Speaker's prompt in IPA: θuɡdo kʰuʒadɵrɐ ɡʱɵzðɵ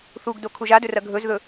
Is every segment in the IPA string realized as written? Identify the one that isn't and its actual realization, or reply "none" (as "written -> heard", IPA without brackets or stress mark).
none